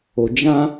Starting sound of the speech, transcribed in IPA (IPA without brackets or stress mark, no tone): o